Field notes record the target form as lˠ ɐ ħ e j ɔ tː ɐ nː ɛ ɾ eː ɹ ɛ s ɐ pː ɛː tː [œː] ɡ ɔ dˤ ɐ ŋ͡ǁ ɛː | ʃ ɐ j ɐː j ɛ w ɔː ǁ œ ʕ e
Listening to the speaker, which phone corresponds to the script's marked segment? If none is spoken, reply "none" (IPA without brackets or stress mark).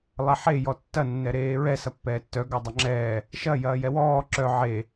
œ